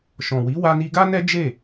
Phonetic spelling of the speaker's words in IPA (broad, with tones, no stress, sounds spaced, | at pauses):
ʃ ɔ̃˨ w i˨˦ w a˧ n i˧ ɡ a˦ n ɛ˦ d͡ʒ e˦˨